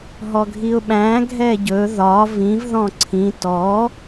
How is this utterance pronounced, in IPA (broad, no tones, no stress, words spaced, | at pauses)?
ɦɔɡʱiʊ̯ɓæ̃ ɡʱɛɟɵ ðɒ vĩv ðɔ̃ǀʰĩ tɔ